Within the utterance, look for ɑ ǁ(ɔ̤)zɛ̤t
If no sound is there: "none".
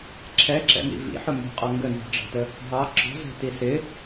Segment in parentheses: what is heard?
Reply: ɔ̤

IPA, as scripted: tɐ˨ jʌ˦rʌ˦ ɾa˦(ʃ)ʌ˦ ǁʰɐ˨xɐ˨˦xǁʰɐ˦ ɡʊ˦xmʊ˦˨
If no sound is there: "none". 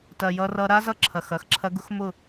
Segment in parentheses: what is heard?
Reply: z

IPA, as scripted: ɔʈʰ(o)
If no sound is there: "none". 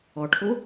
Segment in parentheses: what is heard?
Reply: o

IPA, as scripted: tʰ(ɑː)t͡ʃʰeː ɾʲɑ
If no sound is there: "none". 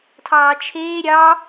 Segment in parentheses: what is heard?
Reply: ɑː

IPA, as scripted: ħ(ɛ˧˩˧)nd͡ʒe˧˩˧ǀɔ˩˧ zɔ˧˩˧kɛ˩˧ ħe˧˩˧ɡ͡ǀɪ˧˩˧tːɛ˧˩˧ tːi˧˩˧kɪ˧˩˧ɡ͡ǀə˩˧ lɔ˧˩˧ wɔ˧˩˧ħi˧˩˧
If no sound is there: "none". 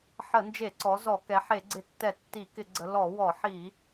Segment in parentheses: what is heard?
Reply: ə˧˩˧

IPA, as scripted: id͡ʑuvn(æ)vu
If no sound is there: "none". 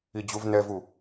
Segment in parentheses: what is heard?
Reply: ɛ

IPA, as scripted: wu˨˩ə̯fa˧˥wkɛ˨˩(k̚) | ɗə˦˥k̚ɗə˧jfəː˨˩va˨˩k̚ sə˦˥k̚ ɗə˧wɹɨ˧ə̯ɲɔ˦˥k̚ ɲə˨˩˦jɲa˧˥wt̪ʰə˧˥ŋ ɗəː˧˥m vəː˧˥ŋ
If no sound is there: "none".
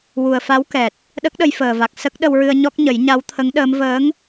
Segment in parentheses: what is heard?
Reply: t̚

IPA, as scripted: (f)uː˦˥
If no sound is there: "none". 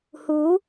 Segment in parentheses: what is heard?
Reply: h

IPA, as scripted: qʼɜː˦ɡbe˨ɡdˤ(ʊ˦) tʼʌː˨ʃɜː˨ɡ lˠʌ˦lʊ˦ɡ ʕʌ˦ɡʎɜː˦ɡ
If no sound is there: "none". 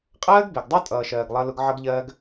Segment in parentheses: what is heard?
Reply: u˦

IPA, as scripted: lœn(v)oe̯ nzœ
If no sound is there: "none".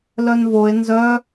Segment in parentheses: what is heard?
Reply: v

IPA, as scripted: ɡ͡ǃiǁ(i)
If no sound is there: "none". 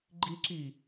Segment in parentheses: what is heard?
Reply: i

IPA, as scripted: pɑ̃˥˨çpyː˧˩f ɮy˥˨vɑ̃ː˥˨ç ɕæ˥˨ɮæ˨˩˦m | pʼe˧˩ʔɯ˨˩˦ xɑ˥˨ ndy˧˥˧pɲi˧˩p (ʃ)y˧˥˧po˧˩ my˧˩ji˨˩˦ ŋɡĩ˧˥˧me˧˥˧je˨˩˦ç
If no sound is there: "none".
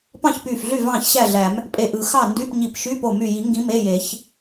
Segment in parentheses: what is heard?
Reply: ʃ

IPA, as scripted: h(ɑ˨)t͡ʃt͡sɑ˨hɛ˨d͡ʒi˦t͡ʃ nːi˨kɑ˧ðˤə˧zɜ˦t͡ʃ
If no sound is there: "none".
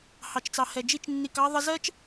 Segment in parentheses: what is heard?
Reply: ɑ˨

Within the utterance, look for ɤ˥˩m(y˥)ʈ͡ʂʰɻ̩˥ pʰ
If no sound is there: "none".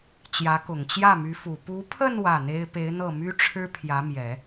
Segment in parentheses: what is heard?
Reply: y˥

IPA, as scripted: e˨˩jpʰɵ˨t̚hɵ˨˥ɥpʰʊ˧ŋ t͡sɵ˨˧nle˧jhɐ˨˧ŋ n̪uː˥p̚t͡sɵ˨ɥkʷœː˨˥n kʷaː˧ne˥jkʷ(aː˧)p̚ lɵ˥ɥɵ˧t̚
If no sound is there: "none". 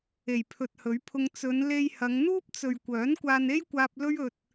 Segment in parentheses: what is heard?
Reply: aː˧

